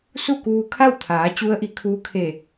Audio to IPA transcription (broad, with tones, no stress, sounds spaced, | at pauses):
s u˥˨ k uː˧ kʰ a˥˨ w t̪ʰ aː˩˧ t͡ɕ u˧˥ ə̯ ʔ i˩˧ kʰ uː˧˥ kʰ e˧˩